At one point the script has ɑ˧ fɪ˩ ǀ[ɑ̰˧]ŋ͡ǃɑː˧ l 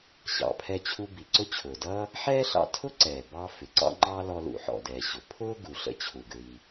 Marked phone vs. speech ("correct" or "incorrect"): correct